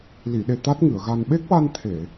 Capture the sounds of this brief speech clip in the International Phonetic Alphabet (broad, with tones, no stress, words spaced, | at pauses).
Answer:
li˨˩˨ɗe˨˩ t̪a˦˥t̚ŋɨ˨˩˨ə̯ɣa˧n ɓe˦˥k̚wa˧n t̪ʰe˨˩˨